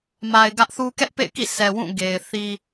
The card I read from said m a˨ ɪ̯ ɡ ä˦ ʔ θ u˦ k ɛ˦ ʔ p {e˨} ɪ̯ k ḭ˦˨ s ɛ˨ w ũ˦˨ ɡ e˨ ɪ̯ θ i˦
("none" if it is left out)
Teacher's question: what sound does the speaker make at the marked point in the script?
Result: ḛ˦˨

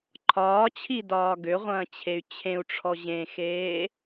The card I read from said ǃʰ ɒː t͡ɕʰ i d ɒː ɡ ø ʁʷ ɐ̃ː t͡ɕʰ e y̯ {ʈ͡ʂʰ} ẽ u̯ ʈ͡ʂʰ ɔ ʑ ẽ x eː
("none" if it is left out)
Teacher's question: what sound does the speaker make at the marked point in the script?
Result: t͡ɕʰ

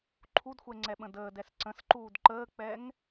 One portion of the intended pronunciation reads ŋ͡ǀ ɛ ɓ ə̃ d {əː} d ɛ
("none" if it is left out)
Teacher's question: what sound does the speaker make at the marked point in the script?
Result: əː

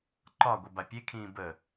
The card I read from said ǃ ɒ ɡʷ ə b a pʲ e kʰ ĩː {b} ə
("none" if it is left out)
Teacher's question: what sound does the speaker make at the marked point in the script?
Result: b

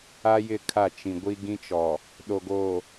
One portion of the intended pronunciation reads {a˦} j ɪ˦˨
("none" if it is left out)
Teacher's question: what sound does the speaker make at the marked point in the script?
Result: a˦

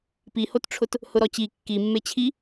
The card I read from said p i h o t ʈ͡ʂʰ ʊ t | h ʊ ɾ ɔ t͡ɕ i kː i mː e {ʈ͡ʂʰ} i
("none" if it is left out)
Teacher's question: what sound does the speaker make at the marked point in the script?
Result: t͡ɕʰ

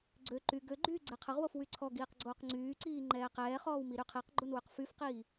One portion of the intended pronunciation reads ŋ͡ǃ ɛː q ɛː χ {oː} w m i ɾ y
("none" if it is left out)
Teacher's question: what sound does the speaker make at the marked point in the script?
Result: ɔː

